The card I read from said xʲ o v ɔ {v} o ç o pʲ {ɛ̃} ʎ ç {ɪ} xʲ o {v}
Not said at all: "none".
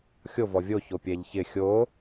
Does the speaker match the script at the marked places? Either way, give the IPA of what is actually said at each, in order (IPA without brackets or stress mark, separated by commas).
vʲ, ɛ, ɪ, none